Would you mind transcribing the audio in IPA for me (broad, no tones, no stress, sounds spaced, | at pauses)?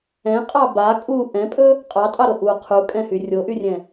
ɛ̃ qʼ ɑ b a kʼ u ʔ ɛ̃ pʼ ɵ | qʼ ɑ tʼ ɑ ɾ o ʔ u qʰ u kʼ ɛ̃ h y rʲ o ʔ y rʲ ɛ̃